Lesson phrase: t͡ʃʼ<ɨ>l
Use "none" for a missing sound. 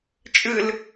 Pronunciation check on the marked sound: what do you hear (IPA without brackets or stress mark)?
ɨ